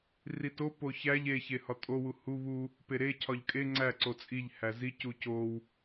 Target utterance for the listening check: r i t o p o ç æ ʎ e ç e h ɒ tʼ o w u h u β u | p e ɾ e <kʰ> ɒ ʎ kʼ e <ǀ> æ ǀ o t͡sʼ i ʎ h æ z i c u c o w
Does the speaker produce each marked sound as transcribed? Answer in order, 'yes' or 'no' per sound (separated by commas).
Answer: no, no